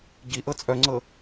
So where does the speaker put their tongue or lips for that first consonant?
palate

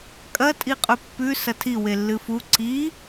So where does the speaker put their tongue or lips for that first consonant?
velum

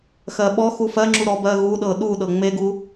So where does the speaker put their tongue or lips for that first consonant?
velum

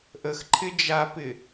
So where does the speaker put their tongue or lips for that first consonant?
throat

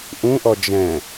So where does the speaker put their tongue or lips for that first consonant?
throat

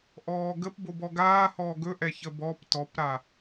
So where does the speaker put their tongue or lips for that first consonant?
throat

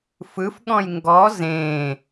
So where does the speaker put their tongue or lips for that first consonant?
lips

